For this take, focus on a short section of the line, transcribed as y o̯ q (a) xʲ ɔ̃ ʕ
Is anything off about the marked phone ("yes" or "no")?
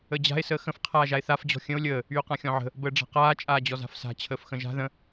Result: yes